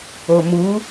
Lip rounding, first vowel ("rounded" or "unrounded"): rounded